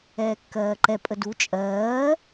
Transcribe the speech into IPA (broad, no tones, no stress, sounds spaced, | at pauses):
ɛː kː ɜː ǃ ɛ pʼ ə d u t͡ʃʼ ɜː